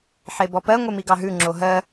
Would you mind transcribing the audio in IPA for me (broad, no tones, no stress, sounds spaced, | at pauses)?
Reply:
ħ e b ɔ p ɜ ŋʷ e m i ɡ ɑ ɦ ʉ ŋ͡ǁ o ɦ ɜ